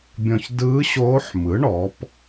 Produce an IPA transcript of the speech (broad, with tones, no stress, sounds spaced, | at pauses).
bʲ ɔ̃˨ ç d ɯː˧˥ ɕ oː˧˥ ħ m ɯ˩˥ ɳ ɔ˩˥ p